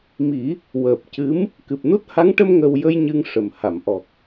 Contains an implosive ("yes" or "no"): no